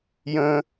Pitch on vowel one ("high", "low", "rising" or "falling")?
high